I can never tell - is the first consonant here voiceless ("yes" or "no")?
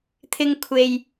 yes